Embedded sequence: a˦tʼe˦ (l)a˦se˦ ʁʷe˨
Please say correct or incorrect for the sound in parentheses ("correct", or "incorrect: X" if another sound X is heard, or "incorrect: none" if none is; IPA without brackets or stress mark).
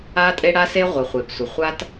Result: incorrect: ɽ